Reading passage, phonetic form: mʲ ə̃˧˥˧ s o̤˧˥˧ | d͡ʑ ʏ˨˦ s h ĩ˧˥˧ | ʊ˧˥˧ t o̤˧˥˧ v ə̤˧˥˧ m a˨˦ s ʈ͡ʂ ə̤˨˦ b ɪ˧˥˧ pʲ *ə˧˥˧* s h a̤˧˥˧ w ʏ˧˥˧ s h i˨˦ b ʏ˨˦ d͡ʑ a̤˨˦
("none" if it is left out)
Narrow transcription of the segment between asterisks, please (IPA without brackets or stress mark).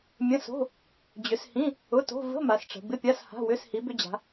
a˧˥˧